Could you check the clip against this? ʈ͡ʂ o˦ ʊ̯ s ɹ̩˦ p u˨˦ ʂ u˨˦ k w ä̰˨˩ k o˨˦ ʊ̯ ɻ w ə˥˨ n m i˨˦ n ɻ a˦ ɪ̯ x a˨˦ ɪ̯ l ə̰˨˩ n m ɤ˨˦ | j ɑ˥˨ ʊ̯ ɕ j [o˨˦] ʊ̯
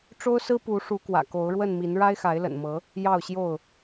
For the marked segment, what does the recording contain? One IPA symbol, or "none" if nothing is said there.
o˥˨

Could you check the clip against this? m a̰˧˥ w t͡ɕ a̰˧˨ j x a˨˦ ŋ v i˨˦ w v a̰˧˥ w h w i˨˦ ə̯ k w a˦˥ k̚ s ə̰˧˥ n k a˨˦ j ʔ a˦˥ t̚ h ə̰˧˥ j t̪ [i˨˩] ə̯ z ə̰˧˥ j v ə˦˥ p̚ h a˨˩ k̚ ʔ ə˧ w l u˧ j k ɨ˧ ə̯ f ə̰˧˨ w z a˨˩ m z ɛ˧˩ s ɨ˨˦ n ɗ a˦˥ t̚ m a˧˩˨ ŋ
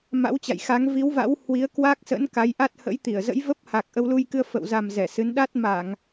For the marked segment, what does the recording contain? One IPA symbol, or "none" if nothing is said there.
i˧˩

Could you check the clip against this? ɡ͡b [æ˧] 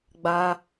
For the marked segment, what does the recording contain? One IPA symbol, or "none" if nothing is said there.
a˧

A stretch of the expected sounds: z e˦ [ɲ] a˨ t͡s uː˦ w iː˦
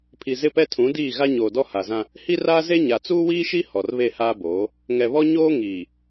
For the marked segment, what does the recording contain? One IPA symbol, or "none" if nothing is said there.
ɲ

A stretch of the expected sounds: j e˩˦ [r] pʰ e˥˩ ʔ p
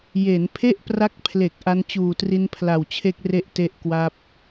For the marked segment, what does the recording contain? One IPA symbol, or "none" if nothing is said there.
n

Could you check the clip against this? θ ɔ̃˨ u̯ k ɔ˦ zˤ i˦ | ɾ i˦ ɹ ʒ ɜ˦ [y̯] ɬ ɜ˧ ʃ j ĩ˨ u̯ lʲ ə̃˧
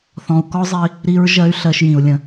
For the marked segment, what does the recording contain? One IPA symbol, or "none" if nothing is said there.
y̯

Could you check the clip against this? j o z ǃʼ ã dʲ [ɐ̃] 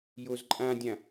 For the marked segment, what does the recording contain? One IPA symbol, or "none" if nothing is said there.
ã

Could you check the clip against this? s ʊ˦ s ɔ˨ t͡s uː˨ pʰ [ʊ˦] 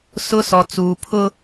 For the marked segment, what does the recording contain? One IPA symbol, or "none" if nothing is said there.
ʊ˦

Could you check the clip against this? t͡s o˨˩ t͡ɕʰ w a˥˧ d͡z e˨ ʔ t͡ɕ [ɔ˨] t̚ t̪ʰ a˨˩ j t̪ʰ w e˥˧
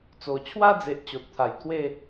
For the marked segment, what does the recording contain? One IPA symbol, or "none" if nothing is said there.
o˨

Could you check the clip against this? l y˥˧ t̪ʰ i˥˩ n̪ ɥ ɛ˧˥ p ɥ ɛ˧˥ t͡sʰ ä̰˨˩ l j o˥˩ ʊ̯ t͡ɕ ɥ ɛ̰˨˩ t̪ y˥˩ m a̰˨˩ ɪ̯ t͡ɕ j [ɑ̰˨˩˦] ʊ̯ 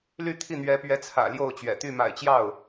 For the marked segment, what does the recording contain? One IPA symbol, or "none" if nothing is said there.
ɑ˥˩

